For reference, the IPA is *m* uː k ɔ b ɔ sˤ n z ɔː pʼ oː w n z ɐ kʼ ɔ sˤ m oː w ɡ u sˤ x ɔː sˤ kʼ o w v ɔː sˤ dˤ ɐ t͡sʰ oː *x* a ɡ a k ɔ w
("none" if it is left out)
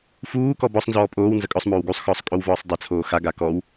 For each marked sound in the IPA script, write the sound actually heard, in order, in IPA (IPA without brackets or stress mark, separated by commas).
f, x